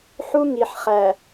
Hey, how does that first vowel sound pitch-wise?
high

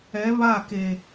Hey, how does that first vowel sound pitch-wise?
rising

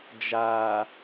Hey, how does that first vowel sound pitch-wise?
low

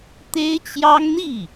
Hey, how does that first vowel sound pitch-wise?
high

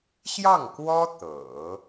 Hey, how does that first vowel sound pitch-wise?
falling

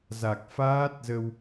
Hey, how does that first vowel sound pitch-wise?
low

